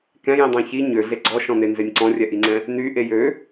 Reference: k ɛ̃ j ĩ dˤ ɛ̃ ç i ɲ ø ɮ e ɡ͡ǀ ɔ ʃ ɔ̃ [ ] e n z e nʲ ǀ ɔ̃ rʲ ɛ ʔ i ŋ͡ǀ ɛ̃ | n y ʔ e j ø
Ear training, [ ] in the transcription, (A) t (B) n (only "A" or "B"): B